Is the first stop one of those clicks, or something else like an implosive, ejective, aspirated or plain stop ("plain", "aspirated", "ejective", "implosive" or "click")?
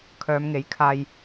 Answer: aspirated